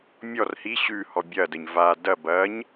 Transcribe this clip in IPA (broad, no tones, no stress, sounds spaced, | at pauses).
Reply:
mʲ ɔ r h i ɕ ʉ h ɔ bʲ ɐ d ə ɲ v a d ɐ b ɐ ɲ